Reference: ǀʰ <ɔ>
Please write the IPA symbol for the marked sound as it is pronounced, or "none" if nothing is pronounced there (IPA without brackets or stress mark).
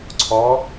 ɔ